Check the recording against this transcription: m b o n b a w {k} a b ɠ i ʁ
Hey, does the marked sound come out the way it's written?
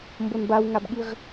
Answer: no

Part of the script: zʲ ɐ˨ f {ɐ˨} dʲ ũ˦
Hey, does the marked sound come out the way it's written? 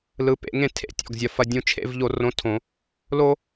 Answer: no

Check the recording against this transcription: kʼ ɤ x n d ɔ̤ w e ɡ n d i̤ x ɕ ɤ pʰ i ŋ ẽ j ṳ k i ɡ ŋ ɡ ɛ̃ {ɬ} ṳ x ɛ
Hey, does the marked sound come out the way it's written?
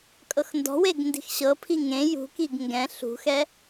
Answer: yes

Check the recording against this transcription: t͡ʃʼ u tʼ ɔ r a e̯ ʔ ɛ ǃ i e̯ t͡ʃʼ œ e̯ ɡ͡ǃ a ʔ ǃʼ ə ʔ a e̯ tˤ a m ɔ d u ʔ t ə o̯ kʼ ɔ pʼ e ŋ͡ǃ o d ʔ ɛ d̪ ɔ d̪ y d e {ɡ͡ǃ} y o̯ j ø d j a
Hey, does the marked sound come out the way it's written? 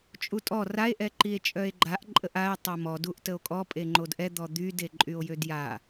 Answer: no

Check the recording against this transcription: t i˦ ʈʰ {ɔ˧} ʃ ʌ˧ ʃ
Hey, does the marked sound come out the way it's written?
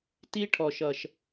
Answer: yes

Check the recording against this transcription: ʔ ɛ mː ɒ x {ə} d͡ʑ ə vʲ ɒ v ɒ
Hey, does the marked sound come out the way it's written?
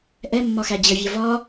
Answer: no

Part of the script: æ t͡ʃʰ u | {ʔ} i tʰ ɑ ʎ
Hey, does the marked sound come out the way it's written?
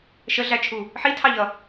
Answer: no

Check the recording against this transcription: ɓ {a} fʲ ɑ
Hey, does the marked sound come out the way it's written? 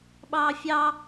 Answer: no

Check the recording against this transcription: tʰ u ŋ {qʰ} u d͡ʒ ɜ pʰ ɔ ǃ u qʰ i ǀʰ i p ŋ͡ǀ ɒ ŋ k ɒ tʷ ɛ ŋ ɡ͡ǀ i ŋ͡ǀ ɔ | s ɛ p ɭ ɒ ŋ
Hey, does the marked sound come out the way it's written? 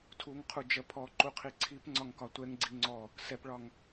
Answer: yes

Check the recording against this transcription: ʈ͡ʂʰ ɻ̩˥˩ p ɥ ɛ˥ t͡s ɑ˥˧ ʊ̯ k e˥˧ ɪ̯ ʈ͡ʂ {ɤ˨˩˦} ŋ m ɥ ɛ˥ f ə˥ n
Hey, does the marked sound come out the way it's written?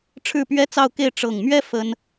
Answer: no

